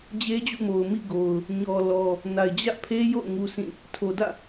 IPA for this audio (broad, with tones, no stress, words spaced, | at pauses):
d͡ʑe˦d͡ʑṵ˦˨mo˨ʊ̯ mḭ˦˨ɡo˨ʊ̯ | ɲɔ˨lɔ˨ | na˨ɪ̯d͡ʑä̰˦˨pʰe˦jo̰˦˨ʊ̯ ŋu˦sʰĩ˦˨ | tʰo˨dä̰˦˨